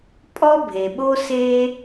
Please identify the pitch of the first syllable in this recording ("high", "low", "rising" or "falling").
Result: high